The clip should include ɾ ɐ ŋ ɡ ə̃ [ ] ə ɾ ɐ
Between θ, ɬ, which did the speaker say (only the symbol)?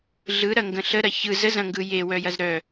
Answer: ɬ